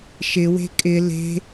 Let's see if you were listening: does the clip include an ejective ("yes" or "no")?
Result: yes